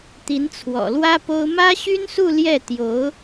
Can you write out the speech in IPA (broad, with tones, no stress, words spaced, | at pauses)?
t̪i˧˥nt͡sʰwɔ̰˨˩lwä˥po˥ʊ̯ mä˥ɕy˥nsu˥˧ ljɛ˥˩t̪jo˧˥ʊ̯